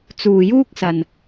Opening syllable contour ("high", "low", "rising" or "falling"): low